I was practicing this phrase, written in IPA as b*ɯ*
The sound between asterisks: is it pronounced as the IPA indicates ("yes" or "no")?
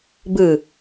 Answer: yes